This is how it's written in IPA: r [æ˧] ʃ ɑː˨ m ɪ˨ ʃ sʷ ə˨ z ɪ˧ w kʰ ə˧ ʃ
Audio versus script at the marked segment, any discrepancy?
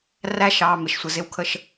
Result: no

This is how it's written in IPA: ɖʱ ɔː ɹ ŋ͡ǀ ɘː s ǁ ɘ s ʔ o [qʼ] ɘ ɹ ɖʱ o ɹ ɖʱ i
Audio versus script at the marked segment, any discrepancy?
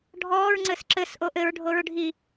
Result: yes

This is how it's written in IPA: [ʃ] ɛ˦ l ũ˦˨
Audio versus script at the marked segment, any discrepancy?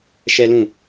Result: no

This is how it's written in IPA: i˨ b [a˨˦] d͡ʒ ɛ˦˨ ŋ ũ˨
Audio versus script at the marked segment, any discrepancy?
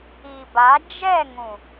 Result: no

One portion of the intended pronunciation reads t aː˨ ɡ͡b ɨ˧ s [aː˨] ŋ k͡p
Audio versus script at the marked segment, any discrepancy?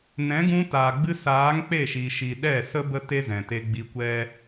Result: yes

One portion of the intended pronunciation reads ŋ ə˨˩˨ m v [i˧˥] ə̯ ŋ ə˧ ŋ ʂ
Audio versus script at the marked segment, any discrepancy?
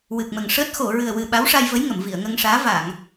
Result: yes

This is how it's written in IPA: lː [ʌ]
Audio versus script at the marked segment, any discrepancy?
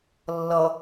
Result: no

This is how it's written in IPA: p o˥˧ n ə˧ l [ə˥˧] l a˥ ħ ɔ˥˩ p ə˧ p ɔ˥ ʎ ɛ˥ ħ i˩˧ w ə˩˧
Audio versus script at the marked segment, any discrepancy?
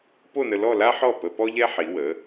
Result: yes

